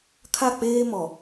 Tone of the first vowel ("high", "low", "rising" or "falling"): falling